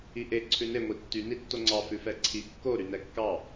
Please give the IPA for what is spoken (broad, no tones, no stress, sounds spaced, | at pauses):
i ʔ e ǀʰ ʉ n e ŋʷ i tː y n i tː o ŋ͡ǀ ɑ f ʉ f ɛ ǀʰ i kː o ɾ y n ɛ kː ɑ